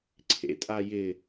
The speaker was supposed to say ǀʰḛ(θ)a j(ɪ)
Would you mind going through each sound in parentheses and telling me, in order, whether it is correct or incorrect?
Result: incorrect: tʼ, correct

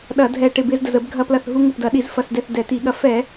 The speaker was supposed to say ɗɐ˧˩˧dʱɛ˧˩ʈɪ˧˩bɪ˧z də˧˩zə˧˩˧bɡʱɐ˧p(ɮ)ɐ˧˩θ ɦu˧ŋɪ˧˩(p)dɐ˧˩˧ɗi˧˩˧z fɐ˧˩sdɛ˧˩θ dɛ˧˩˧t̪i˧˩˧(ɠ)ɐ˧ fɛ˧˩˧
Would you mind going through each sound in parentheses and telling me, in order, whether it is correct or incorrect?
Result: incorrect: l, correct, correct

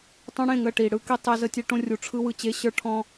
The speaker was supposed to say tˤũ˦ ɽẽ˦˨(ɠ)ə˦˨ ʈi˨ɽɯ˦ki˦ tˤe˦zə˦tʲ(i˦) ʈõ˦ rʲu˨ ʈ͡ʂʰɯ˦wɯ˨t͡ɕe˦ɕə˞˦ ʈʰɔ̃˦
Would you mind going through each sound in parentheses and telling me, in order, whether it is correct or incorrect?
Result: incorrect: ŋ, incorrect: e˦

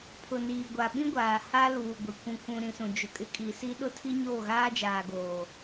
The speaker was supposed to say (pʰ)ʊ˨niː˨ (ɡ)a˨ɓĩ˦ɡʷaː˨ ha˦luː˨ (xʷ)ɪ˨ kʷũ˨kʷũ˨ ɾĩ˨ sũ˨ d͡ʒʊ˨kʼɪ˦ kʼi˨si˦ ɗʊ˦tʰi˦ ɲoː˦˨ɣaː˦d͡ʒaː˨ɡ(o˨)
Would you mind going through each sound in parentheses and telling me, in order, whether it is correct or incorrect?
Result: correct, incorrect: ɡʷ, incorrect: ɡʷ, incorrect: oː˨

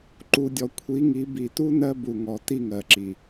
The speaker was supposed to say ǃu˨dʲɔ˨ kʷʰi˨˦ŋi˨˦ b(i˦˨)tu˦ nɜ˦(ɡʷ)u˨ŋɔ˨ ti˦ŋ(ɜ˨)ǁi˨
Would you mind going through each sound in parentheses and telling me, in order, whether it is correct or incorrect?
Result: incorrect: i˨, incorrect: b, correct

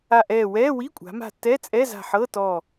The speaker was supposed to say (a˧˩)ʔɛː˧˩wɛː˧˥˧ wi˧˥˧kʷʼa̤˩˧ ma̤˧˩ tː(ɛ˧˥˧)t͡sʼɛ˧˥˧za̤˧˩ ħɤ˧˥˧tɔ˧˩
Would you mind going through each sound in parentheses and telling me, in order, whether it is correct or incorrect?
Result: correct, correct

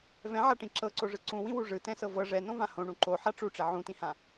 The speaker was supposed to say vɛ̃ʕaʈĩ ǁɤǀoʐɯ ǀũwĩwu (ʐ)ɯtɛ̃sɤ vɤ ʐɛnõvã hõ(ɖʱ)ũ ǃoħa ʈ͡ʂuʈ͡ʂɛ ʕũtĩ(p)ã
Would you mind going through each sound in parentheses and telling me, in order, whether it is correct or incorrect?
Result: correct, incorrect: ɳ, incorrect: h

